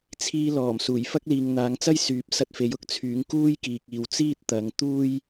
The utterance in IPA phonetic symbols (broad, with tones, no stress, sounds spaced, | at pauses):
t͡sʰ iː˧ l ɔː˨˩ m s uː˨˩ j f ɐ˥ k̚ l iː˨ ŋ n̪ aː˨˧ ŋ t͡s ɐ˥ j s yː˨˥ p̚ s ɐ˧ t̚ f e˨˥ j ʊ˥ k̚ t͡sʰ yː˨˥ ŋ k uː˥ j k iː˨ k̚ iː˨ w t͡s iː˥ t̚ t̪ ɐ˨˧ ŋ t̪ uː˥ j